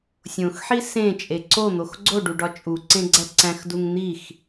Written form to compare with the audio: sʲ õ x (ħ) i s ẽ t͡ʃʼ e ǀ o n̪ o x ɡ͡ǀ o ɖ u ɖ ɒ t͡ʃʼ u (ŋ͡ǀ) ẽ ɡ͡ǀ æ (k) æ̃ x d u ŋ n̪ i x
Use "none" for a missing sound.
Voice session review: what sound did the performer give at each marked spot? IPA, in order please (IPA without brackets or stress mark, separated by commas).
ħ, ǀ, ǀ